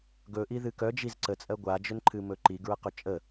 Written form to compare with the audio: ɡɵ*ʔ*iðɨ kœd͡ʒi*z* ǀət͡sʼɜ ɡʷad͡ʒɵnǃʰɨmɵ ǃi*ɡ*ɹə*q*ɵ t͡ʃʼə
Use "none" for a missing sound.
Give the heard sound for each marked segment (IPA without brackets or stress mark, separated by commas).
ʔ, z, ɡ, q